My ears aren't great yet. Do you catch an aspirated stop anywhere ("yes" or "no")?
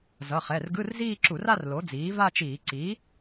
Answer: no